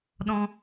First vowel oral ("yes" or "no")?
no